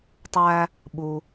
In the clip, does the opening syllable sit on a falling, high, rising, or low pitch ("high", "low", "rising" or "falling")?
high